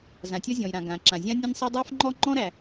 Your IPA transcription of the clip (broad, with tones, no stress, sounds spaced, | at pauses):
z ã˩ tʲ ɔ˥ zʲ ɔ̃˩ j ɾ ã˩ ɡ ã˩ ǁ ã˩ zʲ ã˥ nʲ ã˥ nʲ sˤ ɛ˥ dˤ a˥ f ŋ͡ǃ ɔ˥ ŋ͡ǃ ɔ̃˥ ɾ æ˩